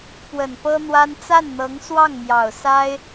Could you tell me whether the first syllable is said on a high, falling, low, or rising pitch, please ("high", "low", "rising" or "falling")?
low